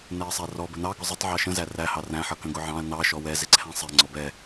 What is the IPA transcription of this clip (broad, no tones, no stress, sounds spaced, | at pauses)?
n ɛ ɐ̯ sˤ æ r ɔ b ə n ɑ ɡ ʊ zˤ ə tˤ ʕ ɑ ʃ ə̃ z æ r æ h ɑ r æ̃ ħ ʌ k ə̃ ɡ ʊ ʕ ɑ̃ ɐ̯ n ɑ ʃ ɔ w ɛ z ɪ ǀʰ æ̃ sˤ ɛ ŋ͡ǀ ɔ b ɛ